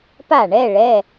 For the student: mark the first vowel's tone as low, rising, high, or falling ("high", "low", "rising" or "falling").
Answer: falling